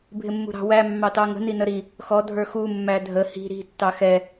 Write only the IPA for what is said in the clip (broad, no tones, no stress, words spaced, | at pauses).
bʱɪmːṳɾɑ̤wæ mːɑtɑŋə̤ ninəɾi | xɔ dʱə˞xu mːædʱə hi̤ ɾi̤ tːɑxɛ